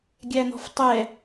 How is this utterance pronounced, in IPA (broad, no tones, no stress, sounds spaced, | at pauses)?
ɡʲ æ n̪ ɔ̤ f tˤ ɛ